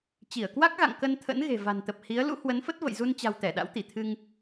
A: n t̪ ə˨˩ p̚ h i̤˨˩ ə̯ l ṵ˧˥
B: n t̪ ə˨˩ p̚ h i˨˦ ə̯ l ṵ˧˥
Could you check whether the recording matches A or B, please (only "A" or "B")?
B